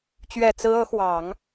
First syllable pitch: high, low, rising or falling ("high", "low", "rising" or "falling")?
low